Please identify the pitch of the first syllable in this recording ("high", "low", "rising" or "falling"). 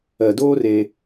low